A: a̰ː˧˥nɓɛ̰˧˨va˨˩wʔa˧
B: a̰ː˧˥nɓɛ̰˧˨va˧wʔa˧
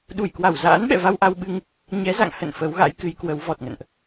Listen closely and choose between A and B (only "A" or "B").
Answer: B